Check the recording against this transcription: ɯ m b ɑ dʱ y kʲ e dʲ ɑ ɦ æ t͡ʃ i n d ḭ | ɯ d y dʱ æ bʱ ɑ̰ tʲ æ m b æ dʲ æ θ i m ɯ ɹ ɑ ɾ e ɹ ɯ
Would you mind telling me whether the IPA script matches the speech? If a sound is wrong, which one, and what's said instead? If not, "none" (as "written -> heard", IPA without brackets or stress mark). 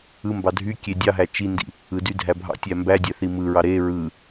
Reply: none